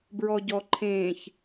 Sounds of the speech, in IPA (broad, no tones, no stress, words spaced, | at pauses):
bɹɔɟɔǃʰẽːç